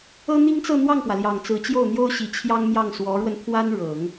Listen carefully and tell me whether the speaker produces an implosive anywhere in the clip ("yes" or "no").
no